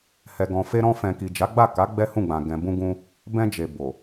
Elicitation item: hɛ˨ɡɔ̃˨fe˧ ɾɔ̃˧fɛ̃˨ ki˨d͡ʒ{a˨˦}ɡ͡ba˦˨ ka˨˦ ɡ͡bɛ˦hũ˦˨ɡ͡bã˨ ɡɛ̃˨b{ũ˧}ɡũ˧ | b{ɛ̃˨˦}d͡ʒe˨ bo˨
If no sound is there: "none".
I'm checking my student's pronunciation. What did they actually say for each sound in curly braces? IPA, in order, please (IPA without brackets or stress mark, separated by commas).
a˨˦, ũ˧, ɛ̃˧